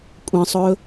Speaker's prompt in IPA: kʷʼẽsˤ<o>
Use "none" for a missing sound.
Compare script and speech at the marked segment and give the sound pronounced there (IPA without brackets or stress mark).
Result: ɵ